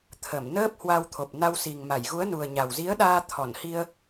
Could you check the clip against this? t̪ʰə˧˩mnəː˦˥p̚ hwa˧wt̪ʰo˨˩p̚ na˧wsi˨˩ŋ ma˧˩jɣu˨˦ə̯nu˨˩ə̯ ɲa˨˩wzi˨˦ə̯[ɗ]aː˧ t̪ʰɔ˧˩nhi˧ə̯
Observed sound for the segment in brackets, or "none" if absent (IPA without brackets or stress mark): ɗ